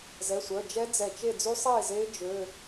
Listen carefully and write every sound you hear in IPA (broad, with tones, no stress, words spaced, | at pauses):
zɛ˩˧˩sʷœ˩˧˩d͡ʒɛ˦˥ d͡zɛ˧˩t͡ʃe˥˨ d͡zy˦˥sˤeː˥˨zeː˦˥ d͡ʒø˧˥˧